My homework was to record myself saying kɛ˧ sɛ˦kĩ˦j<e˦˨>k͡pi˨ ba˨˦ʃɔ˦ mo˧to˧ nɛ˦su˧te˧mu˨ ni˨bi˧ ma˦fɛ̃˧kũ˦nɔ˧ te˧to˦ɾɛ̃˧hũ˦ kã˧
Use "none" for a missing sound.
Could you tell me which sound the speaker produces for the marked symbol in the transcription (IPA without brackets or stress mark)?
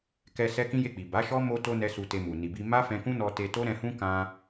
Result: e˦˨